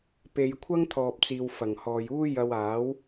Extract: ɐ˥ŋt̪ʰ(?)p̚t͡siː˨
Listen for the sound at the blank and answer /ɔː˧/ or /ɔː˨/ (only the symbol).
ɔː˨